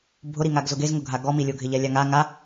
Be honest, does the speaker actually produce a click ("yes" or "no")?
no